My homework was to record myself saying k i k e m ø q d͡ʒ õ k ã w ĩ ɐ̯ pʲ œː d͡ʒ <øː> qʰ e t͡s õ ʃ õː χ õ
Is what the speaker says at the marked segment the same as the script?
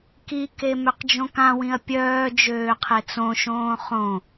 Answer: yes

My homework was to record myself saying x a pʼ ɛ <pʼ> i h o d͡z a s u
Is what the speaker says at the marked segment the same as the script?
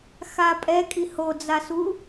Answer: no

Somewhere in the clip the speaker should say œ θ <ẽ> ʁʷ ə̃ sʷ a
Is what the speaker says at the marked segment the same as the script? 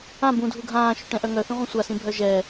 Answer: no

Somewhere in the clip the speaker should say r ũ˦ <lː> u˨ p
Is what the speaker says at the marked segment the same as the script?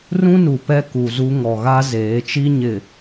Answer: no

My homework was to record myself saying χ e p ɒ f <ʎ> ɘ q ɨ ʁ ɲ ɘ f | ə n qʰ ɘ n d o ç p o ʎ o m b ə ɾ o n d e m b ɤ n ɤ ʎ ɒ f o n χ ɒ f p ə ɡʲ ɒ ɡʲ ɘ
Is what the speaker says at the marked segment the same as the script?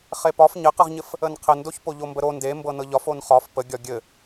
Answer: no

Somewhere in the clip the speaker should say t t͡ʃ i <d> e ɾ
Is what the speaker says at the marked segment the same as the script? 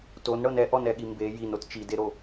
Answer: yes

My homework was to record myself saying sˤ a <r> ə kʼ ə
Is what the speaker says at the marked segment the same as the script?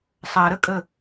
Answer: no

